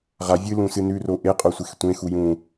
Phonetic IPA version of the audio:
ʁa vʲɨlũsɨ nʉro ʔeqʼosʷex tʷẽxu jũ

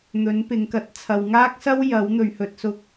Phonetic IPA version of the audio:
n̪ɵ˨˥n pɪ˨˧ŋkɐ˨˥t̚ t͡sʰɐ˨wŋaː˥k̚sɐ˥w jɐ˨˥w n̪ɵ˨ɥhɵ˧t̚sʊ˥k̚

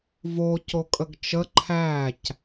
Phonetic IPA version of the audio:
vo cokʼəɡt͡ʃə ǃʰæc

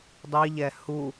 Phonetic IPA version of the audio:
dˤiʎɛ hu

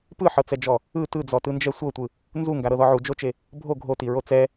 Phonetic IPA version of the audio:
pɯħɤt͡sɛd͡ʒɔ | ɯ tɯd͡zɔtɯnd͡ʒɛ sʷɤtʷɯ | nzuŋɡaɾɤðɔ ʕud͡ʒot͡ʃe | bʱo ɡʱotiɹo t͡sɛ

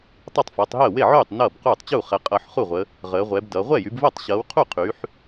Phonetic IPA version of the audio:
tˤʌ˥˩tˤfʌː˨˦tˤɦəː˥˩ we˥˩ʕyː˥˩tˤ nʌː˥˩b quː˥˩tˤt͡ɕuː˥˩ χɛ˨˦qʼʌː˨˦ħχu˥˩ʁʷə˨˦ | ʁəː˨˦ʁʷɛ˨˦bdʌ˨˦ ʁʷɛ˥˩jy˨˦bvəː˥˩tˤ ɕʌː˨˦wqʰu˥˩ qʰyː˨˦ħ

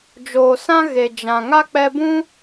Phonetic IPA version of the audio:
d͡ʒoː˨sã˦ ɣe˨d͡ʒã˨ ŋa˦k͡pɛ˧bũ˦

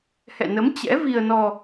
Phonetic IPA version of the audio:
hɛ̰˧˨nə˨˦m t͡ɕɛ̰˧˥vi˧ə̯nɔ˧

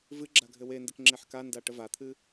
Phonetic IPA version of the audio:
vɨɡ͡ǁa ɡʱɘwendɘk ŋ͡ǁeħkanda ʈəvat̪ʰɨ

